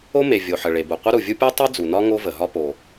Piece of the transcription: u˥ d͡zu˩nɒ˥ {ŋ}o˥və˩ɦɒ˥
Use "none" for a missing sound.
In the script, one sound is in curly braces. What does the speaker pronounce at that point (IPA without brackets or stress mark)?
ŋ